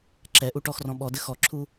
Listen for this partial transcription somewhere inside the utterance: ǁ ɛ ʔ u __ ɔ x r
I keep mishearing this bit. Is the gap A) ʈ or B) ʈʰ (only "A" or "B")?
A